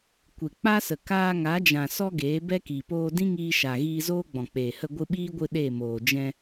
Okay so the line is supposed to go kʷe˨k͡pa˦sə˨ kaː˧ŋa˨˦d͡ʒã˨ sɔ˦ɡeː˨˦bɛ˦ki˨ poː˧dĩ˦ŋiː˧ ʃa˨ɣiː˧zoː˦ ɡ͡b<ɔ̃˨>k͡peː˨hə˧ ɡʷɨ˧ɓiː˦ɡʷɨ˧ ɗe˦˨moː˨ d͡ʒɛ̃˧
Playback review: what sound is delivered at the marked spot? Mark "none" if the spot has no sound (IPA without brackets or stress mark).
ɔ̃˨